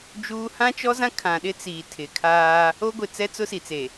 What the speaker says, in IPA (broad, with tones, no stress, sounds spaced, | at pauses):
d͡ʒ uː˦ h ã˦ t͡ʃ ɔ˦ z ã˦ kʰ ã˨ ɗ ɪ˦ t͡s iː˨ tʰ ɪ˨ kʰ aː˦ | o˦ ɡʷ ɪ˨ t͡s ɛ˦ t͡s ʊ˦ s i˨ t͡s e˨